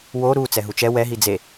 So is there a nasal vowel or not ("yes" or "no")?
no